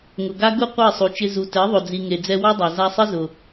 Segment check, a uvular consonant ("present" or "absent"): present